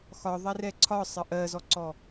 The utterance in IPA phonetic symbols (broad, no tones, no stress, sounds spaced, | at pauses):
x ɒ ðˤ ɛ r ɛ ǀʰ ɒ sˤ ə ʔ ɜ z ɔ ǀ ɔ